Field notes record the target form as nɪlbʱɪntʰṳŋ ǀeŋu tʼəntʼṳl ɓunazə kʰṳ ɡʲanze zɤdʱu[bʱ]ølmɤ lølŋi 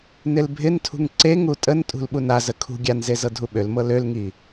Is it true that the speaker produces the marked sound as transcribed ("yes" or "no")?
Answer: no